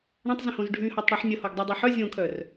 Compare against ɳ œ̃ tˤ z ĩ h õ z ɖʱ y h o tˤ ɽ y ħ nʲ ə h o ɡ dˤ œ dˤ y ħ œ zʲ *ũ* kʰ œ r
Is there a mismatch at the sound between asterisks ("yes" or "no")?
yes